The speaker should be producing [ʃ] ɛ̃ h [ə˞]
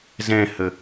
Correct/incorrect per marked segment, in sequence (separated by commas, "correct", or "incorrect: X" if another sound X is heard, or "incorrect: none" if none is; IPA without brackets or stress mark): incorrect: z, incorrect: ə